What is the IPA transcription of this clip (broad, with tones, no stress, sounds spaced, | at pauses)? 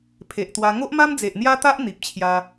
pʰ e˨ ʔ t̪ w a˧ ŋ o˦ ʔ m a˦ m d͡z e˨ ʔ n̪ j a˦ t̪ a˦ ʔ n̪ i˨ p̚ t͡ɕʰ j a˧